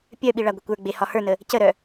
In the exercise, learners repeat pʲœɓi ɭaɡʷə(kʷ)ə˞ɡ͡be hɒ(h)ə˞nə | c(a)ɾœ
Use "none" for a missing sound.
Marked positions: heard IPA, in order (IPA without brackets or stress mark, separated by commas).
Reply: kʷ, h, ə